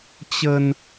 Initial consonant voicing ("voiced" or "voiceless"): voiceless